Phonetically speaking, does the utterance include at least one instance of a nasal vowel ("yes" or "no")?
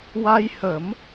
no